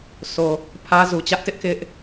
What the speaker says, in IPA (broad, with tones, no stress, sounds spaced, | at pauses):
sʰ o˨ | pʰ ä˦ z u˨ t͡ɕ ä˦ ʔ t ɪ˦ ʔ k ɪ˦ ʔ